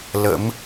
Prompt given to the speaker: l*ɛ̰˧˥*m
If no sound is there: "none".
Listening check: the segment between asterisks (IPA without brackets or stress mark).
ə̰˧˥